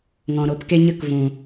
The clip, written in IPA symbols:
ŋ ɔ̃˨ ɾ o˨˦ p k e˦ ɲ ə˦ k v ũ˨

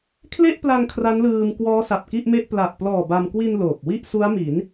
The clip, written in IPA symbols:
kʰ l e˥˩ ʔ p l a˧ ŋ kʰ r a˦˥ n l ɯː˧ m k w ɔː˦˥ s a˨˩ p̚ k i˥˩ ʔ m e˥˩ ʔ p l a˨˩ ʔ p l ɔː˨˩ b a˧ m k w i˧ n l oː˨˩ p̚ w i˥˩ ʔ s u˦˥ a̯ m i˩˦ n

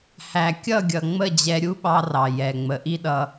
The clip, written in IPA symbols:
h æ˨ kʲ ʌ˦˨ ɡʲ ʌ˨ ŋ͡m ə˦˨ d͡ʑ ɛ˧ ɾʲ u˦ ɓ ɑ˧ r ɑ˨ j ɛ˨ ŋ͡m ə˨ ʔ i˦ ɗ ʌ˧

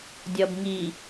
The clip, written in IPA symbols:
dʲ ʌ b ŋ i

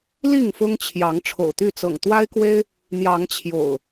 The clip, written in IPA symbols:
l i˥˨ ŋ f ʊ˦ ŋ t͡ɕʰ j ɑ˨˦ ŋ ʈ͡ʂʰ o̰˨˩ ʊ̯ t̪ y˥˨ t͡s ɤ̰˨˩ ŋ t̪ w a˦ ɪ̯ k w e˦ ɪ̯ | n̪ j ɑ˨˦ ŋ t͡ɕʰ j o̰˨˩ ʊ̯

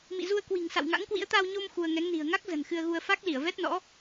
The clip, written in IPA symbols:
m ḭ˧˨ z u˧ ə̯ k w i̤˨˩ ŋ s a̰˧˨ w ŋ a̰˧˥ ŋ k w ḭ˧˥ ə̯ t̪ a˧ w ɲ o˧ m x u˧ ə̯ ŋ ɛ˨˦ ŋ n i̤˨˩ ə̯ ŋ a˦˥ k̚ z ə̤˨˩ n x ɨ˧ ə̯ ɣ u˧ ə̯ f a˦˥ k̚ l i˧˩ ə̯ v ɛ˦˥ t̚ n ɔ̰˧˥

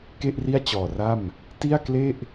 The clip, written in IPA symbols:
k e˥˩ ʔ r i˥˩ a̯ t͡ɕ ɔː˨˩ r a˥˩ m | t i˥˩ a̯ k l e˥˩ ʔ

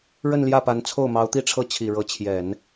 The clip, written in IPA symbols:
ɻ ə˥˧ n l j ä˥˩ p a˧˥ n t͡sʰ o˥˩ ʊ̯ m ɑ˧˥ ʊ̯ t̪ i˥˧ ʈ͡ʂʰ ɤ˥˩ t͡ɕʰ i˨˩ ɻ ɤ˧˥ t͡ɕʰ j ɛ˨˩˦ n

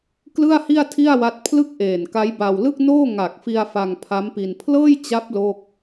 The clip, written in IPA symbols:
k l ɯ˥˩ a̯ h i˥˩ a̯ tʰ i˥˩ a̯ w a˦˥ t̚ pʰ l ɯ˥˩ k̚ ʔ eː˨˩ n k a˦˥ j b a˧ w l ɯ˥˩ k̚ n oː˥˩ ŋ a˨˩ k̚ f i˧ a̯ f a˧ ŋ pʰ a˦˥ m p i˧ n pʰ l ɤː˥˩ j t͡ɕ a˦˥ p̚ l o˥˩ k̚

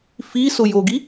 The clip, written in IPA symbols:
f i s ʊ j o ɡ i

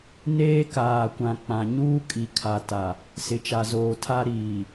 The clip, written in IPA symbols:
n eː˦ k aː˨ kʷ ã˨ k͡p ã˨ ɲ uː˦ kʼ i˨ kʰ a˨ t a˨ | s ɪ˨ t͡ʃ a˨ z oː˨ tʰ a˦ ɾ iː˨

